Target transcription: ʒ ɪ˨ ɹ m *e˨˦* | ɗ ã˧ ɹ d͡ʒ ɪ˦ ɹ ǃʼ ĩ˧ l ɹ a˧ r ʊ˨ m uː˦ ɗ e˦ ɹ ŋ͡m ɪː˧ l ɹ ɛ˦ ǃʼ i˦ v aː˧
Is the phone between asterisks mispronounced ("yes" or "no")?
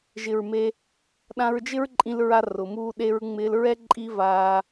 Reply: yes